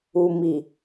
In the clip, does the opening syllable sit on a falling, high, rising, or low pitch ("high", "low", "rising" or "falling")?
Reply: low